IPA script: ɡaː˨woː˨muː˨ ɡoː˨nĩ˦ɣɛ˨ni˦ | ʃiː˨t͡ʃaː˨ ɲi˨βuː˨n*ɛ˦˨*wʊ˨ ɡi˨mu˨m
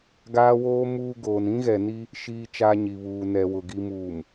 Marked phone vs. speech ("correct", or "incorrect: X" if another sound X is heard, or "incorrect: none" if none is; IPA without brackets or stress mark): incorrect: ɛ˨